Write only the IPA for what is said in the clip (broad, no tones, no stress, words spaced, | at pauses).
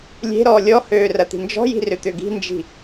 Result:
lʲe̤ɾɔː lʲɔhøː rɐt̪i̤nd͡ʒɔ̤ji̤ rʏt̪ʏɡi̤nd͡ʒi̤